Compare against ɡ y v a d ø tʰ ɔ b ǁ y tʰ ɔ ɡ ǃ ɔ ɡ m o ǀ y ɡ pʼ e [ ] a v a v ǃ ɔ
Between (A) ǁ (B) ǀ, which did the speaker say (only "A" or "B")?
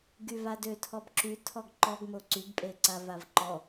B